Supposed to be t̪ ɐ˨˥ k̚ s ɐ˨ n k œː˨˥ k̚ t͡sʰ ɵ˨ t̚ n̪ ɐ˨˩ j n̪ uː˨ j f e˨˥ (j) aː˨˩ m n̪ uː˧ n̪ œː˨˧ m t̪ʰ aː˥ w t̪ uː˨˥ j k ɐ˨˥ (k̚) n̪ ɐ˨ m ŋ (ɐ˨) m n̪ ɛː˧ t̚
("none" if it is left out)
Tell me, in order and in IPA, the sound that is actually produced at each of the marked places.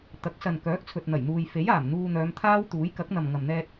j, k̚, ɐ˨

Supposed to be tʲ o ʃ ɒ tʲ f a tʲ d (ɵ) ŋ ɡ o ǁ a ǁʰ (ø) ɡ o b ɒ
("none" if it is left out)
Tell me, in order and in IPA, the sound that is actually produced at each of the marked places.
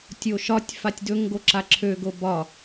ɵ, ø

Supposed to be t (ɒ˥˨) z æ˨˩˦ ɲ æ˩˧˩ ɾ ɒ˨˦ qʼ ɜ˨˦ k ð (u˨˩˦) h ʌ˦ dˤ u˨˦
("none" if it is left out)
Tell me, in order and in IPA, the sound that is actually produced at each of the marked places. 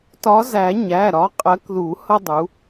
ɒ˨˦, u˨˩˦

